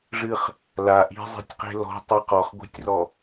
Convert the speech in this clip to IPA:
ʐ ɨ χ | l a ʔ i̤ zˤ i̤ tʲ q e̤ l ɔ̤ tˤ i q ɔ χ ɡʷ i̤ tʲ r ɔ

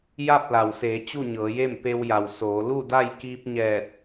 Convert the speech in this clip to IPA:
j a˥˨ p̚ l a˩ w s eː˩˧ t͡ɕ u˥˨ ɲ ɤː˩˧ j e˥˨ m p e˧ w j a˩ w s oː˩˧ l u˥˨ d a˥˨ j k iː˧ p̚ ɲ ɛː˧˩ t̚

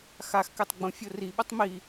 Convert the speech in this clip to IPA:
x a x k ɛ tˤ ɡ͡b õ fʲ o r i ɓ o tˤ m i

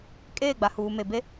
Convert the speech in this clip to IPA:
kʼ eː˦˨ ɡ͡b a˨ h uː˨ m e˨ b e˦

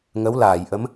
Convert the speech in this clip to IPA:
ŋ ə˧˥ w l aː˨˩˨ j ʔ ə˧˥ m

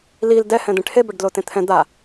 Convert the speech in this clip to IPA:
l i l d ɛ h ɛ̃ d̪ ẽ ʈʰ e b ɐ ɖ d l o t ẽ t̪ʰ ɛ̃ d̪ a

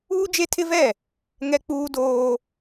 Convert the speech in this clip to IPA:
uː˦ d͡ʒ e˦ tʰ ɪ˦ v ɛ˦˨ | ŋ ɛ˦ k͡p uː˦ d oː˦

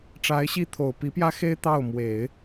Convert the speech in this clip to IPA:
ʈ͡ʂ a˧˥ ɪ̯ ɕ i˥˩ t̪ʰ o˨˩ ʊ̯ p i˧˥ p j ä˥ x e˥ ɪ̯ t̪ ɑ˥˩ ʊ̯ m w e˨˩˦ ɪ̯

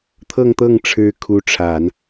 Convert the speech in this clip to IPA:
t̪ʰ ɤ˥˧ ŋ t̪ ɤ˥˩ ŋ ʈ͡ʂʰ ɻ̩˧˥ kʰ u˧˥ ʈ͡ʂʰ a˨˩˦ n

